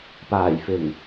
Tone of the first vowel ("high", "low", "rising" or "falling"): low